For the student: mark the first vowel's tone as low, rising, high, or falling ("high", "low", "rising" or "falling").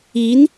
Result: rising